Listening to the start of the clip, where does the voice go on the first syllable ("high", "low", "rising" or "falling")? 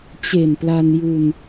low